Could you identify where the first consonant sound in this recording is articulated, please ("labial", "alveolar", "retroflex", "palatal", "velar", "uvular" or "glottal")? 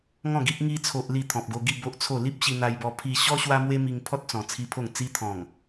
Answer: velar